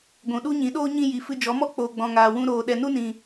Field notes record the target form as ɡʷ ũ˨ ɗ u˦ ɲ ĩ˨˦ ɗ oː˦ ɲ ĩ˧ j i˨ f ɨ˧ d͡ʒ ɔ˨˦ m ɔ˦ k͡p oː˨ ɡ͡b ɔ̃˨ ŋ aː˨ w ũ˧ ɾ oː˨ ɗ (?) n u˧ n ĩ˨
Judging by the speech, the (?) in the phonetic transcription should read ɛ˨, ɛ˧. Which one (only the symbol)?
ɛ˨